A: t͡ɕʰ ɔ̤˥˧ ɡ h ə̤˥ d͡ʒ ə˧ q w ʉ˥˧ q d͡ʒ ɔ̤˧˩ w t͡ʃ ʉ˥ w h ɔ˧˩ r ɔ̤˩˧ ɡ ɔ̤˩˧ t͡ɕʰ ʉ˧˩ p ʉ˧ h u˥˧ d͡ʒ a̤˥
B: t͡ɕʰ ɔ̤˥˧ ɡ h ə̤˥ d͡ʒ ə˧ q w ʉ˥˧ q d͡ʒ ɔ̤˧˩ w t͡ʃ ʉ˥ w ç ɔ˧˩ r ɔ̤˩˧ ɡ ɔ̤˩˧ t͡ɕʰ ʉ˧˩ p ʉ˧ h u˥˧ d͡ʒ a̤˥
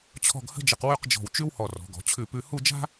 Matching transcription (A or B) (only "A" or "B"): A